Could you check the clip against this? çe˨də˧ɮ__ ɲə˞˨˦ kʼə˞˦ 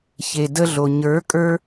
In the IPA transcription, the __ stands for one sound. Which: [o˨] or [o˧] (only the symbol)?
o˨